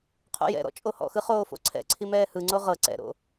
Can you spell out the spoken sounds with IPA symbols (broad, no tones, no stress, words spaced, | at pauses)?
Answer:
qʰo̰jɛ̰ɾɔ̰ t͡ʃʼohɔ̰xɯ χoːfo̰ǀʰɛ̰ǀʰi mɛːhɯŋ͡ǀo ʁɤ ǀɛ̰ɾo̰